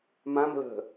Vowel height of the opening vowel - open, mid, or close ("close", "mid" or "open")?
open